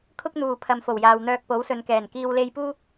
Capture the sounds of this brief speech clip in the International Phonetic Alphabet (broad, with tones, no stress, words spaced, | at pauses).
kʰʊ˥k̚n̪uː˨pʰɐ˨mfo˨˩w jaː˨wn̪œː˧k̚po˨˥w sɵ˨nkɛː˨˩nkiː˧w le˧jpuː˥